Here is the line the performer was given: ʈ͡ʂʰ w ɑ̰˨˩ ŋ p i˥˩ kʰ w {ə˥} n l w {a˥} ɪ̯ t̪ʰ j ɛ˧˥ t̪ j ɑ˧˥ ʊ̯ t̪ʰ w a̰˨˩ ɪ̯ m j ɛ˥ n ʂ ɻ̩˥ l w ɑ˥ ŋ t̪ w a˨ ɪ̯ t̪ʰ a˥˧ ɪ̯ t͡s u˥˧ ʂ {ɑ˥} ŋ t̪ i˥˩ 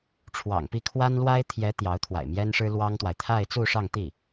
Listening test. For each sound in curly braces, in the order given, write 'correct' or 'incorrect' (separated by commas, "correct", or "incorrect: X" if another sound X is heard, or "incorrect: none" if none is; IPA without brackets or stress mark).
incorrect: a˥, correct, incorrect: ɑ˥˧